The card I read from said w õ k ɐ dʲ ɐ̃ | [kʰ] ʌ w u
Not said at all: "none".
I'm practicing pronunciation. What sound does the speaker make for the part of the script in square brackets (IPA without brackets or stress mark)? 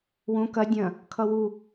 kʰ